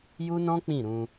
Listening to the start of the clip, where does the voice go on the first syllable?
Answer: high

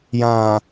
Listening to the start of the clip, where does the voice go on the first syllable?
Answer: low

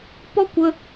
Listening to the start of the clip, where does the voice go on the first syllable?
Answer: high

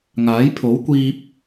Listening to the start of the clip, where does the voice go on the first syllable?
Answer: rising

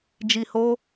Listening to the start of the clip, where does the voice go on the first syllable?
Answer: low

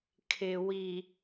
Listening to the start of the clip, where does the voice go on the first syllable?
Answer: low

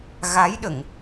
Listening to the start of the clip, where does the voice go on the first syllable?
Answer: rising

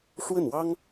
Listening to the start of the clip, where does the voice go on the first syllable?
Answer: falling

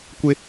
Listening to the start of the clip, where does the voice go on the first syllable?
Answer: high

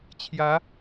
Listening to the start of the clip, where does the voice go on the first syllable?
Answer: rising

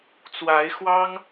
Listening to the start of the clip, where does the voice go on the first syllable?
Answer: rising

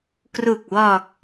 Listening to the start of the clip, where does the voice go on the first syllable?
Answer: low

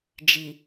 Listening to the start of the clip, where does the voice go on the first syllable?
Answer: low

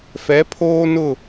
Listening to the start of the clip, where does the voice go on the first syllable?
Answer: rising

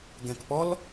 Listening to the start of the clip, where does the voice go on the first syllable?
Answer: low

